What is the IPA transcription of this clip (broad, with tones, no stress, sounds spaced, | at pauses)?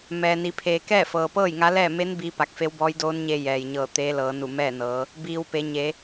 m ɛː˩ n i˩˧ pʰ eː˩ k ɛː˥˨ f ɤː˩ p ɤː˥˨ j ŋ a˧˥ l ɛː˥˨ m e˧˥ n b iː˧˥ p a˧˩ k̚ f e˧˥ w b ɔː˧˥ j d oː˧˥ n ɲ e˧ j ɛː˩ j ɲ ɤː˧˩ t̪ eː˧˥ l ɤː˩˧ n u˧˩ m ɛː˥˨ n ɤː˩˧ | b iː˩ w p e˩˧ ɲ e˩˧